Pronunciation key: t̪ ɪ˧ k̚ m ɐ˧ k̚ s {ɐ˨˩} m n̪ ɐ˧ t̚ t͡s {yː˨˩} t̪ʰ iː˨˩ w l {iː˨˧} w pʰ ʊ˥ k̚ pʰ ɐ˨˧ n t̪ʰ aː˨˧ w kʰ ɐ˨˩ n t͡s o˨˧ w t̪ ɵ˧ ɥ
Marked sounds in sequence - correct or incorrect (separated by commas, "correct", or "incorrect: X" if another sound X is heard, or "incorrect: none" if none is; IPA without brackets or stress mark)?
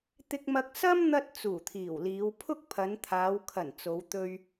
incorrect: ɐ˥, incorrect: uː˨˩, correct